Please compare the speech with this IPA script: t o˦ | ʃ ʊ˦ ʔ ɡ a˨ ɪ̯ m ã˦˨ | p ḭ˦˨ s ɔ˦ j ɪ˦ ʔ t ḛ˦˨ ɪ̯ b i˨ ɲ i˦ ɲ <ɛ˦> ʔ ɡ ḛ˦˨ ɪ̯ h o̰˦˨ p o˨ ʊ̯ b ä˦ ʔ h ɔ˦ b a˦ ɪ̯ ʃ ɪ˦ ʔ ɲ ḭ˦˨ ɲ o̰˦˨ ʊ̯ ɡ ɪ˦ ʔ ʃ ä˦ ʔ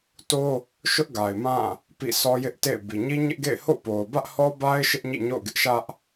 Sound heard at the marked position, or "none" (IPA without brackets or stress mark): ɪ˦